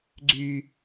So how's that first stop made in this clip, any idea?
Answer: click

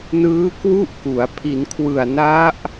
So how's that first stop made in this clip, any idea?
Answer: plain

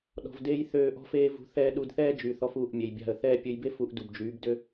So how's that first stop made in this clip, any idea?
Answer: implosive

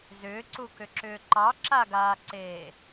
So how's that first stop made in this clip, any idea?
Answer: click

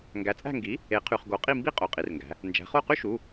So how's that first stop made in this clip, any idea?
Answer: plain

